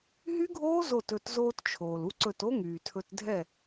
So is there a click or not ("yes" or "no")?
yes